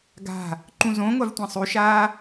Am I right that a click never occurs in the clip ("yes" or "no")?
no